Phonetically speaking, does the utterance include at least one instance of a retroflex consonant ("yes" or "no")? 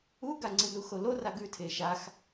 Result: no